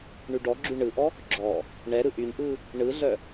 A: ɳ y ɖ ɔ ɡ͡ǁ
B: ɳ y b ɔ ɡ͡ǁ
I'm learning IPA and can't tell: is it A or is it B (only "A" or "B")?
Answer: A